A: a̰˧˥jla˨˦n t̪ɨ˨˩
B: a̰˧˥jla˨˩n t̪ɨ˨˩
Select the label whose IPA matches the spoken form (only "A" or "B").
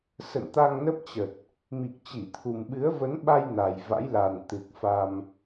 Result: B